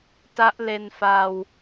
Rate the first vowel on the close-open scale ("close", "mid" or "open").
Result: open